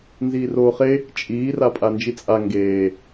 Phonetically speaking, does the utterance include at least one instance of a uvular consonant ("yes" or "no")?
yes